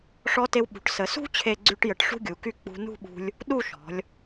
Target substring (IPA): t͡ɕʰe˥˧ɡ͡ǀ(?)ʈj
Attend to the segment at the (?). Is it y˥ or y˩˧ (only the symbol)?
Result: y˥